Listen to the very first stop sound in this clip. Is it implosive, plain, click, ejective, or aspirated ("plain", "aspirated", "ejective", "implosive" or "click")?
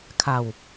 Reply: aspirated